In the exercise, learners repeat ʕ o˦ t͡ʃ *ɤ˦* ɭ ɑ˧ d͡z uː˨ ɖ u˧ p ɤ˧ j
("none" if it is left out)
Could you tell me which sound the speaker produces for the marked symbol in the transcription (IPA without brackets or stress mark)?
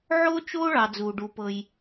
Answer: o˦